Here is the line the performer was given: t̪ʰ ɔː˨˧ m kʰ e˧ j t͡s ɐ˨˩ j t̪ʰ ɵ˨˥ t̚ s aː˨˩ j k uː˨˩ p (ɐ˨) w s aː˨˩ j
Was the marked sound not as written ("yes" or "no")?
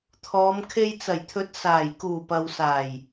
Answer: no